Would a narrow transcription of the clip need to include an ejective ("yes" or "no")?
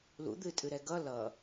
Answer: yes